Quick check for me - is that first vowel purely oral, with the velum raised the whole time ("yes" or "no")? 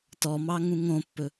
yes